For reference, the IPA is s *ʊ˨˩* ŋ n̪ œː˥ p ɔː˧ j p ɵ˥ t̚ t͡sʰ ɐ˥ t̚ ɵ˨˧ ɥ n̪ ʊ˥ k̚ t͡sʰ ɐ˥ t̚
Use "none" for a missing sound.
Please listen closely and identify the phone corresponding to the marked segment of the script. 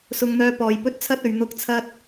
ʊ˥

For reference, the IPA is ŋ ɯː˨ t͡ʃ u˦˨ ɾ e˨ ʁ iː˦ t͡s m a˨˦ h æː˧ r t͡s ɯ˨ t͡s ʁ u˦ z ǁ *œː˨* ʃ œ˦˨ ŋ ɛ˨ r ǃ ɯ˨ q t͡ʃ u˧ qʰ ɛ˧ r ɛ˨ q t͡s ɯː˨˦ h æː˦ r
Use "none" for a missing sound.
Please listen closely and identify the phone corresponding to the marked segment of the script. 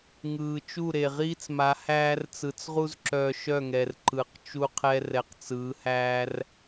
œː˧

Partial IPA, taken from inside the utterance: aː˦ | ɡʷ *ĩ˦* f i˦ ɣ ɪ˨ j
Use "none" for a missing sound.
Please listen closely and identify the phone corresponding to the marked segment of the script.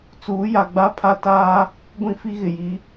ĩ˦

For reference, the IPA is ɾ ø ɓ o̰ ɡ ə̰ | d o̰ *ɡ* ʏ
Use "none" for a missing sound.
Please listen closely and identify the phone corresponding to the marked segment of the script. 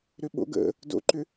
ǃ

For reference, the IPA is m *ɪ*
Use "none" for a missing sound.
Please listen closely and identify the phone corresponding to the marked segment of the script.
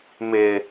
ɪ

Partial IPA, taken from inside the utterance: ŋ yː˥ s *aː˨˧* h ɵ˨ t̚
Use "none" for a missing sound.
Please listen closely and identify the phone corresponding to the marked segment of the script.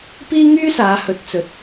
aː˨˧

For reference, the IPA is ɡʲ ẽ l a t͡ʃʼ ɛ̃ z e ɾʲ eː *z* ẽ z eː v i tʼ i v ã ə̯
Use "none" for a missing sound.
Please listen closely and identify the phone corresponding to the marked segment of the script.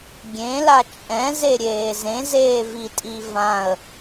z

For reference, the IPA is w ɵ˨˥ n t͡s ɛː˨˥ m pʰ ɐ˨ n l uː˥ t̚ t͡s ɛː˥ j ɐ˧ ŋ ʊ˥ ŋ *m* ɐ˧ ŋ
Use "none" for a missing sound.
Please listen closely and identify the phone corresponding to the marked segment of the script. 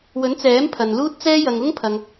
pʰ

